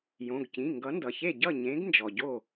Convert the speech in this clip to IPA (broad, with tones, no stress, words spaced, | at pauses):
jõ˩˧˩ɡcĩ˩˧˩ ŋɡʌ˨˥ndʌ˩çe˥˩ ɟʌ˥˩ɲẽ˨˥ɡ nd͡ʒɔ˩ɟo˥˩